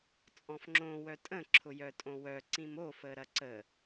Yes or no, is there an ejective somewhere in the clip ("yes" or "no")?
yes